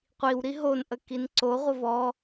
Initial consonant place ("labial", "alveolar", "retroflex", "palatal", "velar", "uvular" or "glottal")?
uvular